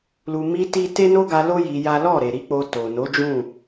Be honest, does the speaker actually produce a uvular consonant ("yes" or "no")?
no